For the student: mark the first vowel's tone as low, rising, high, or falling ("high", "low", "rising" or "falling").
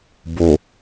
low